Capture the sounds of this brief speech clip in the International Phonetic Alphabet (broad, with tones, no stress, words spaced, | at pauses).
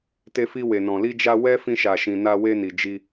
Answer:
te˧fi˧we˨nɔ̃˨ li˧d͡ʒa˧ wɛ˦ fĩ˧ʃa˨ʃĩ˨ na˧we˧ni˨d͡ʒi˧